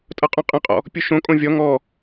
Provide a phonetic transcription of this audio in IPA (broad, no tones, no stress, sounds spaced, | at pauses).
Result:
tʼ ʌ qʼ õ qʼ ə̃ qʼ ɔ̰ | pʲ u ʃ õ kʼ õ vʲ ɔ ŋ ɔ